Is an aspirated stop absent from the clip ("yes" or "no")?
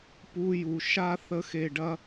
yes